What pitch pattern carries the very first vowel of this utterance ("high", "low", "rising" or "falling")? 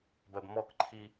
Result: low